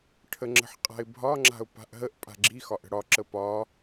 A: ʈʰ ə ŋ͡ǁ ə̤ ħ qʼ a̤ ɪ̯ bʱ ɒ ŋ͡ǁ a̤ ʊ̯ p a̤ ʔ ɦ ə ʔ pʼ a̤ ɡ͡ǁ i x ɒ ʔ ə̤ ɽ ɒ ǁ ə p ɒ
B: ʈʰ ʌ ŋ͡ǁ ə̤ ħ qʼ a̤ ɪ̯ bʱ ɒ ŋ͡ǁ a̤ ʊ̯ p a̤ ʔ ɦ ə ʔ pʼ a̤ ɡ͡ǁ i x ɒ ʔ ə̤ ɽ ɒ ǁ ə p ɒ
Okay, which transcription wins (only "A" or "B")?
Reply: A